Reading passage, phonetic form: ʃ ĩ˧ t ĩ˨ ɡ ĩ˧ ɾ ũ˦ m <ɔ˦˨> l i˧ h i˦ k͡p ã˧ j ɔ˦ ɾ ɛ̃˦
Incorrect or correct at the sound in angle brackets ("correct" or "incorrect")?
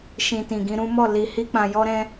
correct